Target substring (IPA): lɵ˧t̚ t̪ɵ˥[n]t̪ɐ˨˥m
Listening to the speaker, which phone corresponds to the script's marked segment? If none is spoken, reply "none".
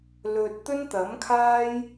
n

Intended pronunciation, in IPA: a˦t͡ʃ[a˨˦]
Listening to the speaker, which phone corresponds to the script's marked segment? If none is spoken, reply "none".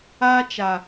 a˨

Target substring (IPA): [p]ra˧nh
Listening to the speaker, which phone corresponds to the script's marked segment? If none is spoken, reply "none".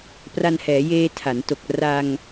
p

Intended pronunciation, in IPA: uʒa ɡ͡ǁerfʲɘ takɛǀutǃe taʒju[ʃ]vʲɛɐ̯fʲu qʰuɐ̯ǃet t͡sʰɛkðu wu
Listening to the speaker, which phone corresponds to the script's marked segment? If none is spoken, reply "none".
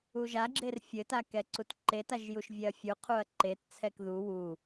ʃ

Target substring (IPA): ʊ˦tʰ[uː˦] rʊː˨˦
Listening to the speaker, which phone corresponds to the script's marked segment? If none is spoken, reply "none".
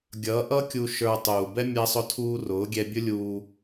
uː˦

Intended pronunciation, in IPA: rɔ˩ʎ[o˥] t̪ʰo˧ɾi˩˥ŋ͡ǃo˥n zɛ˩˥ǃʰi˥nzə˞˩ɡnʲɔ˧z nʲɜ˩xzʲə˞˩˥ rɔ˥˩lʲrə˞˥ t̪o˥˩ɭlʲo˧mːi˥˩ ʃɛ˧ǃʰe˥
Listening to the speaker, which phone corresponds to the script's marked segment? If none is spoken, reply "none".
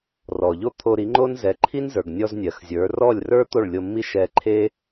o˥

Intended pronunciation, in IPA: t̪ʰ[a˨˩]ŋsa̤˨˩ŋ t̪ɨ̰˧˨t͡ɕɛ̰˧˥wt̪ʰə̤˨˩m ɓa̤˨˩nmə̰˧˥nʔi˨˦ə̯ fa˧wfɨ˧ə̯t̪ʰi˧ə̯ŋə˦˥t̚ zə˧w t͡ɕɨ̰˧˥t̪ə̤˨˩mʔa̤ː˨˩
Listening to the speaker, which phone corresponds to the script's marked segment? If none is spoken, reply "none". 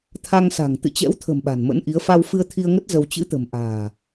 a˧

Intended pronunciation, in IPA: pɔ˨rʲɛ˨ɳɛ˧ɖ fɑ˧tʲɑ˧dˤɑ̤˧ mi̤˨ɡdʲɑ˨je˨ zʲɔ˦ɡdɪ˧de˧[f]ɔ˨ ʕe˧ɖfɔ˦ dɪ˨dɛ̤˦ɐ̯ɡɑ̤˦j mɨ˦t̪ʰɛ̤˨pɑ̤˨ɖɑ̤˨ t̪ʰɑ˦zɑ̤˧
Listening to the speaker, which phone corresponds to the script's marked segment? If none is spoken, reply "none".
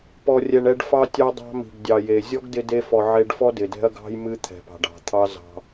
f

